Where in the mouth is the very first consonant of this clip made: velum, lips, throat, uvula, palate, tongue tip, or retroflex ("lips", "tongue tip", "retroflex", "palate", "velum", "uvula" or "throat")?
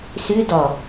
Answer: tongue tip